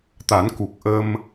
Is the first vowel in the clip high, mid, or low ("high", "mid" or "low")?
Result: low